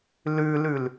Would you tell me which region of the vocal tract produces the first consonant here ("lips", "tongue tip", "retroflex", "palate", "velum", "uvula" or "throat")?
tongue tip